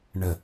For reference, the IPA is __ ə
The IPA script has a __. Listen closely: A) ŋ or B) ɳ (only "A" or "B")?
B